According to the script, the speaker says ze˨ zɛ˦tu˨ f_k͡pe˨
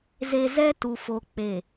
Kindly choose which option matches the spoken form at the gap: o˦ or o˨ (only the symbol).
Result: o˨